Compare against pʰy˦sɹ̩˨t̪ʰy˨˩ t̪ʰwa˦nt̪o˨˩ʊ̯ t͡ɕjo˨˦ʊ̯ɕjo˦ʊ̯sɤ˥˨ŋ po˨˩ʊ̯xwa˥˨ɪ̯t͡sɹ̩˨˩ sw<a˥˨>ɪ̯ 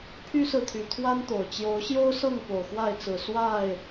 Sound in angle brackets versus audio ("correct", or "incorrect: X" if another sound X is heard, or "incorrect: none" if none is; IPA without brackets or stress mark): correct